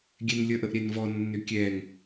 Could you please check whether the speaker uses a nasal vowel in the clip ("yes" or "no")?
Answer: no